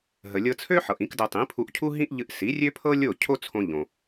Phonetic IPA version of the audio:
ɦə˩lʲɤ˧t͡sʰø˥ħɤ˩ʔ ĩ˩˥kdɤ˧ tˤĩ˩˥pʰu˧ʔcʰu˥ɦĩ˥ʔ ʎɨ˧ʔ si˩˥rʲø˥pʰɤ˥ lʲo˥˩ cʰo˥t͡sʰõ˧ʎõ˩

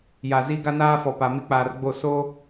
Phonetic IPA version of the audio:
ja˨zi˦ ɡa˦naː˦fɔ˨ pa˨mi˦k͡paː˨rɡ͡bo˦˨ so˦

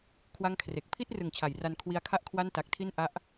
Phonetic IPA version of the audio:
kʰwa˥˩ŋkʰre˨˩k̚ pʰi˥˩t̚rɯ˩˦ŋ t͡ɕʰa˩˦jra˧n kʰwi˧a̯ kʰa˥˩ʔkʰwa˥˩nta˨˩k̚tʰi˥˩n ʔa˦˥ʔ

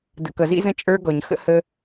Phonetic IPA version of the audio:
də̰˨kʌ˨zḭ˦zə̃˦ t͡ʃʼə˞˦ɡɔ˨ɲ xə̰˦hə˦

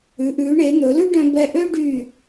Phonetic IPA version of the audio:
ʉ˩˧ʔʉː˩˧ ɳe˩˧ n̪ɵ˩˧lʉ˥ɖœ̃˧ bɛ˧ʔø˥ɖy˧˩

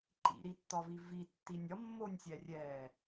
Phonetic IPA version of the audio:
ǃḭɾitːɒvi vitːinʲ ɒmːonʲsʲɛrʲɛː

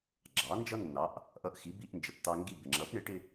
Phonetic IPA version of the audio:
ɡ͡ǁɑ˩˥nd͡ʒʌ˥nːɑ˩˥ʔ | ʔʌ˧ʔ xi˩˥ bi˧ʔnd͡ʒə˩pt̪ɑ˧ ŋɡi˥˩ bɪ˩ŋ͡ǁʌ˩˥p ɳɪ˩˥ʈɪ˧

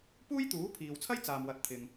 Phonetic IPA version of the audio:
puː˥jt̪uː˨˥pʰiː˨wt͡sʰɐ˥j t͡saː˨mwɐ˨t̚ t̪ʰɪ˨ŋ

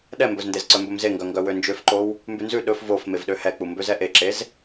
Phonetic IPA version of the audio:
ɗɛmbɵzndez ǀœmbɵmzeŋɡœ ŋɡœwønd͡ʒøfǃow | mbʉnzʉ ɗɵf vof mevɗøhɛk͡pu mbøzɛʔeǁez

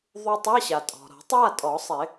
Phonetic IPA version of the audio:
ðˤu˧ tˤa˧˥˧ɕa˩tʼɔ̤˩ ɾɔ̤˨˩˦tˤja˥˨tʼɔ˨˩˦ sˤɪ˨˩˦

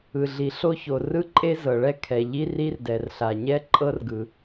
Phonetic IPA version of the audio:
ɯ˩ɮi˩ ɬo˥ço˩ rɯ˥ǃʼe˥ zɤ˩ ɭɛ˥kʰɛ˩ ʎi˥ri˥rdɛ˩rɬa˩ ɲɛ˥ǃʼɤ˥rɡɯ˩

